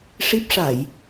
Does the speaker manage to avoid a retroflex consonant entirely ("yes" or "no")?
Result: no